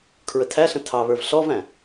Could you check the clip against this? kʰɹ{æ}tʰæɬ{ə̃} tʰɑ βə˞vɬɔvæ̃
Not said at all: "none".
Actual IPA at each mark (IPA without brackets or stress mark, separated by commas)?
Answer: ə, ə̃